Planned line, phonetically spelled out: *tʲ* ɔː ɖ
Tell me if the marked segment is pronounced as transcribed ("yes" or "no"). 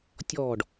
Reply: yes